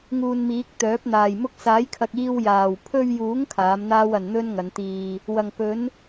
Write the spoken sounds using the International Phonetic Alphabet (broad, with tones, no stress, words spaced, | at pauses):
ŋuː˧nmiː˨˥k̚t̪œː˨˥p̚n̪aː˨j mʊ˧k̚saː˨˥jkʰɐ˨k̚ iː˧wjaː˨˩w pʰɵ˧ɥjuː˨˥ŋ kʰaː˨˥mn̪aː˥wɐ˨n n̪ɵ˥nŋɐ˨˧nt̪iː˧ | wɐ˨˩ŋpɵ˨˥n